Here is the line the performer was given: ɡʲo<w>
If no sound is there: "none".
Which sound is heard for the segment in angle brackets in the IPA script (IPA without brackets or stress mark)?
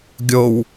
w